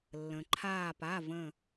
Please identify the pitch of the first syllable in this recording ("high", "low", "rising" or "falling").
low